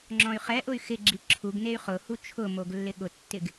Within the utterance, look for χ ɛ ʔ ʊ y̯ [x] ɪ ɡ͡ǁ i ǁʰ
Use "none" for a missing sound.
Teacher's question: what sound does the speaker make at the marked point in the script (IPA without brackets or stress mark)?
x